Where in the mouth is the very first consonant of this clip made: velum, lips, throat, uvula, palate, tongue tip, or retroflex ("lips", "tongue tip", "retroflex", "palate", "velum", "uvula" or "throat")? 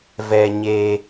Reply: lips